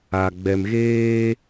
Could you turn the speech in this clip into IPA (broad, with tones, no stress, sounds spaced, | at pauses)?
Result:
a˨ ɡ͡b ɛ˨ m ɣ eː˦